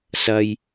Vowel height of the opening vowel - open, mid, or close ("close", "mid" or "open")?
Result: open